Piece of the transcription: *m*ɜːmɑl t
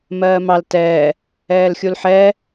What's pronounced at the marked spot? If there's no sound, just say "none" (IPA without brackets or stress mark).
m